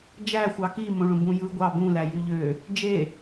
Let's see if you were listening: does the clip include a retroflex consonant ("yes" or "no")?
yes